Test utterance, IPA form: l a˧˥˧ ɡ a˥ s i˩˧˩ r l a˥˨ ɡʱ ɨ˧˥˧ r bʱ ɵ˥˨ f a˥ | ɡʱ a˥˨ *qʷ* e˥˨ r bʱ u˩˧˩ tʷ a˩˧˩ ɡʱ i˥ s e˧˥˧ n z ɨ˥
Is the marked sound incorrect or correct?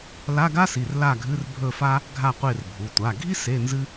correct